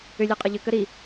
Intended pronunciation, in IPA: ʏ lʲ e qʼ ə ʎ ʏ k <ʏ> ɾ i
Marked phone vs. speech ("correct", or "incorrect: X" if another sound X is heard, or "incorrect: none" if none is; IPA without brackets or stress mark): incorrect: ə